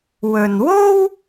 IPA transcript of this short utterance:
wɵ˨n wo˥w

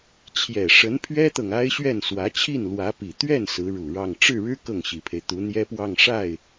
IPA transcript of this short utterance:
t͡ɕʰjɛ˨˩ʂə˧˥npʰɥɛ˥t̪ɤ˨ŋ a˥ɪ̯ɕɥɛ˥˩nswä˧˥ t͡ɕʰi˥˩nlwä˧˥pi˨˩ t̪ɥɛ˥˩n sɹ̩˧˥ɻu˨˩ɻɑ˥˧ŋ ʈ͡ʂɻ̩˥˩ɻɻ̩˥ kɤ˥˩ŋɕi˨˩pʰe˦ɪ̯ t̪u˧˥n̪jɛ˥pwɑ˥˧ŋ ʂa˥˩ɪ̯

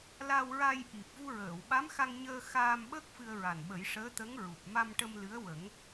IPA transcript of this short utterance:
la˧wɹa˧j ʔi˨˩p̚vu˧ɹəː˨˩˨wɓa˧˥m xa˧ŋɲəː˧ xaː˧mɓəː˦˥k̚ fɨ˧ə̯ɹa˨˩nɓə˨˩˦j ʂəː˧˥t̪ə˧˥ŋɹu˨˩p̚ ma˧mʈə˧m lɨ˧˥ə̯ wə˨˩˦ŋ

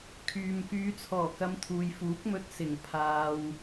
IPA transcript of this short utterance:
kʰyː˨mkyː˨˧t͡sʰɔː˨˩kɐ˨˧m t̪ʰuː˨jfuː˨˥k̚mɵ˧t̚ sɪ˨˩ŋ pʰaː˧w

